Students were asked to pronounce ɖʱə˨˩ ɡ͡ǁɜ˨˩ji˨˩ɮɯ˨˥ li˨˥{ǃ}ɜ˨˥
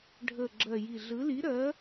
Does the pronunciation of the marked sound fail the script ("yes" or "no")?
yes